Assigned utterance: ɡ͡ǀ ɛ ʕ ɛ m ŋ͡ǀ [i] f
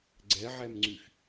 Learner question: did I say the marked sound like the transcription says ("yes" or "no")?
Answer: no